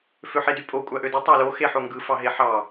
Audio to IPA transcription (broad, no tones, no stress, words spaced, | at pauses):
føħedypʼo kʷʼæʔødɯ tˤɑlo xeħoŋɡɯ fɑɦeħɑ